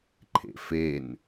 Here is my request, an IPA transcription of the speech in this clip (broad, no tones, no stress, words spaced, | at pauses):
ǃʰḛfen